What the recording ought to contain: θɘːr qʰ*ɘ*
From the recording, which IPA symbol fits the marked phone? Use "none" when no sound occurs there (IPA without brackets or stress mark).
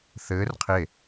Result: e